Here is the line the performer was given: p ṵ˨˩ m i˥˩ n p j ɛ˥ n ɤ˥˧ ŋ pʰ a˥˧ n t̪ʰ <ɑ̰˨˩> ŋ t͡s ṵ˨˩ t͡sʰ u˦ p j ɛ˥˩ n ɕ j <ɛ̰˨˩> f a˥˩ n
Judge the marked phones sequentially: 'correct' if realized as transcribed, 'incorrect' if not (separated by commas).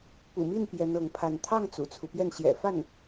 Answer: incorrect, correct